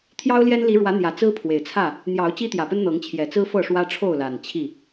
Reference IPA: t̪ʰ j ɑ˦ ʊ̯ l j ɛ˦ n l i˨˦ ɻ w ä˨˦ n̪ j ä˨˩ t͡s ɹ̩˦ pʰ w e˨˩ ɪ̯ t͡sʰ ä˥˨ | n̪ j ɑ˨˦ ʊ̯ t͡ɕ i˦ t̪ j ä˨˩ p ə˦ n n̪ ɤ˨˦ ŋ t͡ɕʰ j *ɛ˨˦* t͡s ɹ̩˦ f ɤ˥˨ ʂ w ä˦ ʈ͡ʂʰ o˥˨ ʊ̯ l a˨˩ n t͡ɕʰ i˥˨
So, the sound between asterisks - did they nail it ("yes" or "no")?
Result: no